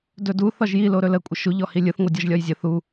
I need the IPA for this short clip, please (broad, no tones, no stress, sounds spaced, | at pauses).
d ɵ d u θ ɒ ʒ j i l o ɾ ɵ l ə kʷʼ ə ʃ u ʎ ɔ h i lʲ ɯ θ ŋʷ ɯ dʲ ɒ ʒ lʲ ɒ j zʲ ə θ u